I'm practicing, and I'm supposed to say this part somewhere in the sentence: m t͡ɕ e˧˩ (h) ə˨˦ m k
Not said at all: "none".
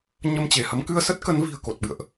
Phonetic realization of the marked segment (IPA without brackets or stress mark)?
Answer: h